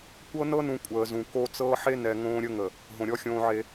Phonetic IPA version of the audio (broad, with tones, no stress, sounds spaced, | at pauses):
kʷ ɤ˦ n ɤ˦ n ũ˨ kʷʼ əː˨ z ũ˨ k o˦ t͡s ɤː˦ ħ e˦ n ɛ˨ ŋ õː˦ ɾʲ ə˦ ŋ ə˨ | ɦ õ˨ ɾʲ ɔ˦ xʲ õː˦ ʕ e˦